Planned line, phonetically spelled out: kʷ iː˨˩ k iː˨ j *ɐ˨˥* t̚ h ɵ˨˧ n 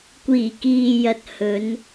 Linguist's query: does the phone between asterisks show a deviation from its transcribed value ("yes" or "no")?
yes